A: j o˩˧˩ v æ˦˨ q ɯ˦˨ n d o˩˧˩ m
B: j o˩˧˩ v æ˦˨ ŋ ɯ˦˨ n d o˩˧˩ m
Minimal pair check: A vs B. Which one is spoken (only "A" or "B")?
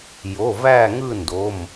B